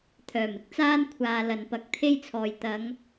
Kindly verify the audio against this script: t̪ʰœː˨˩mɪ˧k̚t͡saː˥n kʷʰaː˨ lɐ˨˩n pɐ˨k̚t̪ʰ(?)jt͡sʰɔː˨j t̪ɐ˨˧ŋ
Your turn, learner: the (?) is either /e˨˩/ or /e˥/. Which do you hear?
e˥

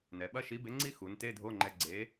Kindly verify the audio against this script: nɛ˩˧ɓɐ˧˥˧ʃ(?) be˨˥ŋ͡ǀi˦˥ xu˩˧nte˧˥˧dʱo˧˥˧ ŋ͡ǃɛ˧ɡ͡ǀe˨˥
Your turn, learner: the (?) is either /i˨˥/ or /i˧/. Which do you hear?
i˨˥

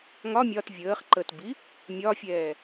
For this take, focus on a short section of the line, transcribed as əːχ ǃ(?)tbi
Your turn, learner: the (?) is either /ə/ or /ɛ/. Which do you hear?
ə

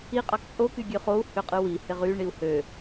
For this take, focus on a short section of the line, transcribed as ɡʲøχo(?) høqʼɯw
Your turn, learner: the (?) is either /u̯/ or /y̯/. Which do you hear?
u̯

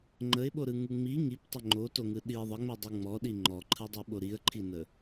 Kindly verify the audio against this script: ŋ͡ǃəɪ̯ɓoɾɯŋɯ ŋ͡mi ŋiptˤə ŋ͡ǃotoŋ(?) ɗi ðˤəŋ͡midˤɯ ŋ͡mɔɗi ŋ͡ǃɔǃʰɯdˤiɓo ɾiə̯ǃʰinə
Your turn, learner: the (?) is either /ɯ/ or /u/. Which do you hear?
ɯ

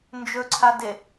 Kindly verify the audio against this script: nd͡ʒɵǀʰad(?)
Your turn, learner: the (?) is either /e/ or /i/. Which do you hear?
e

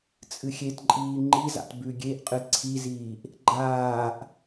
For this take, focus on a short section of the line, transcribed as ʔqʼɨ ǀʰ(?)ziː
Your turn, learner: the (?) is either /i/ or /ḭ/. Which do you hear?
i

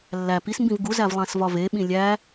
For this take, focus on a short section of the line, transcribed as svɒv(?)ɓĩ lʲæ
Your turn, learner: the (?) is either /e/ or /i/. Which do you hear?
e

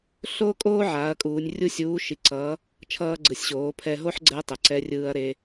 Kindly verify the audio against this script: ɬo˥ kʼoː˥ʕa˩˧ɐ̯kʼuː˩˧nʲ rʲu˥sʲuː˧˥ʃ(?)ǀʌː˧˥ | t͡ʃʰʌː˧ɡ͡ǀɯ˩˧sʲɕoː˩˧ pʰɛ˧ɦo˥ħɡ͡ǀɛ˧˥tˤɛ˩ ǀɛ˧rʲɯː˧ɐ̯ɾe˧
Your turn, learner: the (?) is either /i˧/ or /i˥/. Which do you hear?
i˧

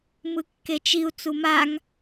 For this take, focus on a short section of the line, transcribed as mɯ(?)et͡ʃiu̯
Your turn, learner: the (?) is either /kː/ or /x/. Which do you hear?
kː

